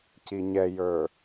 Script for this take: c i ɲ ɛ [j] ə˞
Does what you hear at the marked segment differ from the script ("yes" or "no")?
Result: no